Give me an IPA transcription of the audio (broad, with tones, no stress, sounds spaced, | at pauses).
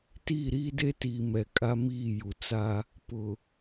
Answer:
t iː˦˨ ɾ iː˦ d e˦ t iː˨ m ɛ˨ kʼ a˦ m iː˦˨ j u˨ t͡s a˦ | p ʊ˨